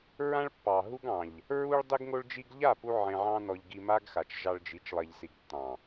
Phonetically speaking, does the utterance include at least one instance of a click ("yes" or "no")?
no